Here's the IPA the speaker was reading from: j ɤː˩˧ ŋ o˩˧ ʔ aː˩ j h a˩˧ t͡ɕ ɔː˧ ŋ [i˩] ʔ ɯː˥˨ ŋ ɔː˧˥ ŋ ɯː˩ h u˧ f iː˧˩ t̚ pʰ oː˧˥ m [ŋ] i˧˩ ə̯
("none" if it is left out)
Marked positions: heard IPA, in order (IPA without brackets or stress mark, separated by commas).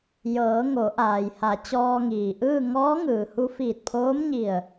iː˩, ɲ